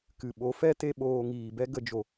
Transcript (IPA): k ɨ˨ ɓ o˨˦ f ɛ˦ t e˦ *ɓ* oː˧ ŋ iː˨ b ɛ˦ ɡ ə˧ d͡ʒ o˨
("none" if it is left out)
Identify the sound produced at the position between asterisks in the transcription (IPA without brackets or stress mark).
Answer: ɓ